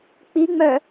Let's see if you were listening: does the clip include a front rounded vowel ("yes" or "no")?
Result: yes